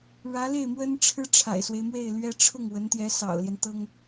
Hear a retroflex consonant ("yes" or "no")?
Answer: yes